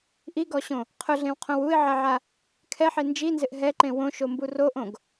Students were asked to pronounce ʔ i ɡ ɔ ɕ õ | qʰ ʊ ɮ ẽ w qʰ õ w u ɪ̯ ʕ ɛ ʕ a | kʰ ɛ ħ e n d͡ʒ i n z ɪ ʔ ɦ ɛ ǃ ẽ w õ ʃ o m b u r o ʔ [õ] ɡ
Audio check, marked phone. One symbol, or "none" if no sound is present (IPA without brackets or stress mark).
õ